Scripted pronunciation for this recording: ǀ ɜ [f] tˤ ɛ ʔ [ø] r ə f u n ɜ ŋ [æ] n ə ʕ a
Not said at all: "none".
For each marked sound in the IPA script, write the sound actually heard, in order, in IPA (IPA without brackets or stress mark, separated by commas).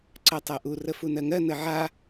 none, u, ɜ